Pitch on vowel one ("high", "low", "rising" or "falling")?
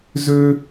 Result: high